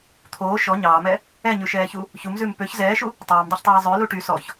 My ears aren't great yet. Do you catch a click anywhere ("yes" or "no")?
no